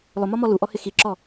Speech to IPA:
lˠ ʊ m ɒ m ɔ l u ʔ ɔ h ɪ x i ǁ ɔ

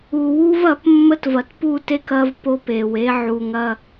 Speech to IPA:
u˨ w u˦ v ɐ˨˦ p mː ə˦ t v ɐ˨ t p u˦˨ t e˦ k ɐ˦ v p o˦ p e˨ w e˦ ʕ u˨ ŋ ɐ˦˨

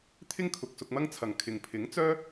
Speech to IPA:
t̪ʰ ɪ˥ ŋ kʰ ʊ˨ k̚ s ʊ˧ k̚ m ɐ˥ ŋ t͡sʰ ɐ˨ ŋ kʰ ɪ˨ ŋ pʰ ɪ˨˥ ŋ t͡s œː˥

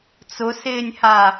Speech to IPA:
t͡s ʊ s ɪː nʲ h a

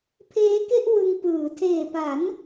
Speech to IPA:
pʰ eː˦˥ k e˥˩ ʔ w ɯ˧ ŋ p ɯː˩˦ tʰ eː˨˩ p a˩˦ n

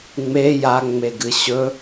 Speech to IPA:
ŋ͡m e j a ŋ͡m e ɡ ɨ ɕ ɵ

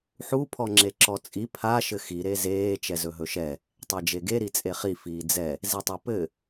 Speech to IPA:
ħ u pʰ ɔ ŋ͡ǁ e ǁ ɔ t͡sʼ i pʰ a ʃ ɘ x i ɾ e z eː t͡ʃ ɛ z ɵ ɦ ɵ ʃ ɛ | tˤ ɛ d͡ʒ e ɡ e ɾ i t͡sʼ e χ i f iː d͡z ɛ | z i tˤ u p ɘ

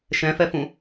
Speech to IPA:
ʃ ɛ̃ f ɛ f ũ

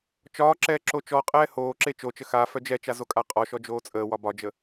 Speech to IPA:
t͡ʃ ɒː ǁ ɛː ǁ o t͡ʃ ɔ qʼ ɛː h oː ǁ e t͡ʃ o t͡ʃ ə x a f œ d͡ʒ ɛ t͡ʃ a z o kʼ a qʼ ɔ ʃ ɔ d͡ʒ oː t͡sʼ əː w ɒ b ɒ d͡ʒ ə

